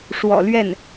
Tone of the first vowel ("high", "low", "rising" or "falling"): low